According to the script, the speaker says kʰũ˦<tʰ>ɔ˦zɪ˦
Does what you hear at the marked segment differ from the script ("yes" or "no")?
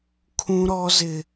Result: yes